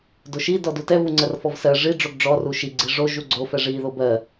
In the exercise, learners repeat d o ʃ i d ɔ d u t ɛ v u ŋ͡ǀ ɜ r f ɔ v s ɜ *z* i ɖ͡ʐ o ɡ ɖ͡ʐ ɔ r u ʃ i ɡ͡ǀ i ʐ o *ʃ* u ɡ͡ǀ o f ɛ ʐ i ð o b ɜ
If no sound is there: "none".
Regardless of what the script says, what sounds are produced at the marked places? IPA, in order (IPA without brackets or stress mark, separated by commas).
ʐ, ʒ